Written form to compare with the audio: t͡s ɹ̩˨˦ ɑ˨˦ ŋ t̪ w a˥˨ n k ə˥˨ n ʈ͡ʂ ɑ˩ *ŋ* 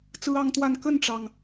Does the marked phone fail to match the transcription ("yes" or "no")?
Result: no